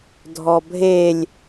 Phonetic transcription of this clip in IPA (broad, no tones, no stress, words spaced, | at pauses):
dʱɔbʱelʲ